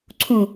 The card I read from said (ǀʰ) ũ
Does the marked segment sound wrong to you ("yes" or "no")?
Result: no